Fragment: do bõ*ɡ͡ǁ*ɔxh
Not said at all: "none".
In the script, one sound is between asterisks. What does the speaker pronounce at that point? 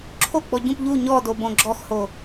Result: ɡ͡ǁ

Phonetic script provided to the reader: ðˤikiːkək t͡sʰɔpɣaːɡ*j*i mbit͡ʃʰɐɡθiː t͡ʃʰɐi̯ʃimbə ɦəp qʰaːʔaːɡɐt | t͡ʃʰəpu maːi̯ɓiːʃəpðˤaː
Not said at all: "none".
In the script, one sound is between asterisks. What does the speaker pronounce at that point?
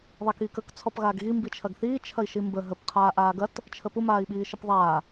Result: ɣ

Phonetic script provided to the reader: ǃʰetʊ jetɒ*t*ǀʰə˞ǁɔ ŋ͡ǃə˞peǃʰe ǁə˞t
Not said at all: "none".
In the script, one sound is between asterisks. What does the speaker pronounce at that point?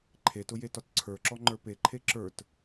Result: t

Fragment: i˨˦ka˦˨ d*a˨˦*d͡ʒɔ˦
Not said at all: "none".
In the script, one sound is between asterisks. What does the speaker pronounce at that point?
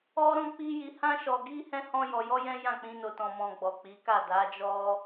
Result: a˨˦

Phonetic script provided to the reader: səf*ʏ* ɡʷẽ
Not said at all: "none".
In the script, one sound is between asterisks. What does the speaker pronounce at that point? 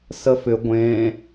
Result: ʏ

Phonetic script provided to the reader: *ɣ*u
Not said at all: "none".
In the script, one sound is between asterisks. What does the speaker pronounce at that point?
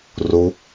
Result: r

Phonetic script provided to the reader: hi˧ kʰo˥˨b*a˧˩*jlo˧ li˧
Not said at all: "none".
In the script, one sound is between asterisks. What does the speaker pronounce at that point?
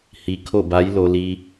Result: a˧˥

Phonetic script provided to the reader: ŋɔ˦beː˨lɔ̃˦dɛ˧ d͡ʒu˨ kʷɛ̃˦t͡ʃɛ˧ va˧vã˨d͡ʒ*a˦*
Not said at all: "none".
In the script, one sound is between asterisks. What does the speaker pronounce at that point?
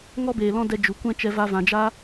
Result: a˦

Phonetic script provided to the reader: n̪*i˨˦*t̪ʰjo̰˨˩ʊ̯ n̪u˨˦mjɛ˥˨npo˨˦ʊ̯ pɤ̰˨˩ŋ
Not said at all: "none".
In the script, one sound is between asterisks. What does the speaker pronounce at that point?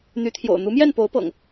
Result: y˨˦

